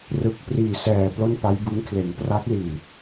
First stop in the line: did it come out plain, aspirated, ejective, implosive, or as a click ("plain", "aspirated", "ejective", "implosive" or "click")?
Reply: plain